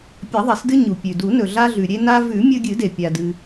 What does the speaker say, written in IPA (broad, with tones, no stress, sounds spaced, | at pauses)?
pʲ ɐ˨˩˦ ðˤ i˩ s d ɨ˧ ɲ u˩ pʲ ʉ˩ d u˨˩˦ n ɵ˩ ɮ a˧ ɮ ʉ˩ ɾʲ e˧ n a˧ v ʉ˨˩˦ mʲ ɵ˧ ɡʲ ɨ˨˩˦ d e˩ pʲ a˩ d ɨ˩